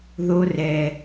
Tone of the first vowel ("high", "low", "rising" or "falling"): high